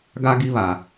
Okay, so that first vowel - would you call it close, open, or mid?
open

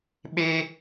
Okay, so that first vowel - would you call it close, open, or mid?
mid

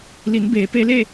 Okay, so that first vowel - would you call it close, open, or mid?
close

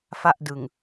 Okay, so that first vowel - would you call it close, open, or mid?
open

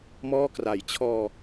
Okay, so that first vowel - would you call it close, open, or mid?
mid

